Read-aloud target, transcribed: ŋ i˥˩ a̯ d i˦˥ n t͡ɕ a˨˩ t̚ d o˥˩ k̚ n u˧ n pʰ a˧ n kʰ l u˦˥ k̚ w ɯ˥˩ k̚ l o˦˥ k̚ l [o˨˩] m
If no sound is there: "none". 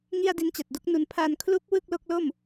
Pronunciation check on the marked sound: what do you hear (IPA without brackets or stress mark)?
o˥˩